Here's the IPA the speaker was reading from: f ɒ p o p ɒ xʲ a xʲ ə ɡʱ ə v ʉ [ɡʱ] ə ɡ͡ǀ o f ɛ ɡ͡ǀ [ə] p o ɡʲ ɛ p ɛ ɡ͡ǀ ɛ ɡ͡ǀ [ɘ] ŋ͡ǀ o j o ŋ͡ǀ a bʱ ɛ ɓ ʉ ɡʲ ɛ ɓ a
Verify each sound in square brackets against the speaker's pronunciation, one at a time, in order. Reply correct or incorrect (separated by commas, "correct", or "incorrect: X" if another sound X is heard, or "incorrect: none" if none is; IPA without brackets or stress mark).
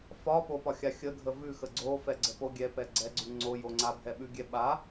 incorrect: x, correct, incorrect: ʉ